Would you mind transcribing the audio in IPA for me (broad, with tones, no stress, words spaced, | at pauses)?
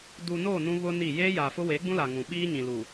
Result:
du˨no˦˨ nũ˦βʊ˦ni˦˨ jeː˦jaː˨fʊ˦ weː˨˦ɡ͡bũ˦la˨ŋũ˨ ɓiː˦ɲĩ˨ lu˨